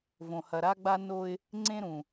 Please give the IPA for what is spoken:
v õ˨ h ɐ˨ ɾ a˦ ɡ͡b a˦ n o˦ ɪ̯ | ŋ͡ǀ ẽ˦ ɾ ũ˨

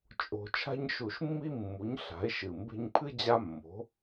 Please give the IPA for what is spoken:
t͡ʃʼ o̤˨˩ t͡ʃʰ a̤˦ ɲ ʃ u˧˩˧ ʃ mː i˦ mː u˩˥ ɲ ɬ a̤˩˥ e̯ ʃ ɨ˨˩ m b e̤˦ ɲ pʰ ɨ˦ d͡ʑ a˦ mː o̤˩˥

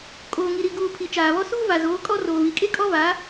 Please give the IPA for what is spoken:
kʼ oː˨ ŋ i˨ ɾ i˨ ɡ uː˨ pʰ i˨ t͡ʃ aː˨ β ɔ˦ s uː˦ v a˨ z oː˨˦ kʼ ɔ˦ r oː˨ β i˨ kʼ e˦ kʼ ɔ˦ v a˨˦

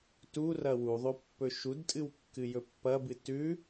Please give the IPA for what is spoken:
t u r ɐ w u ðˤ o pː ɵ ʃ u d tʼ ɨ w kː ɨ j ɵ pː ɐ b ɨ t ʉ

